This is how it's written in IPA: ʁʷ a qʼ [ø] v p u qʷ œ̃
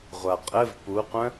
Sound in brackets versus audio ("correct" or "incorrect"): incorrect